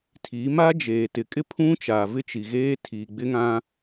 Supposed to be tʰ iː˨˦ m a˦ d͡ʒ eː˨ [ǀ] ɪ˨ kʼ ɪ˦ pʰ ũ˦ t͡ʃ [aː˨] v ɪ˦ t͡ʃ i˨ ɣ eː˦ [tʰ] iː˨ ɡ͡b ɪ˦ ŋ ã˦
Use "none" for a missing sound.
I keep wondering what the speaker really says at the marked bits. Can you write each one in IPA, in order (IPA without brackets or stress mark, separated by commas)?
t, aː˨, tʰ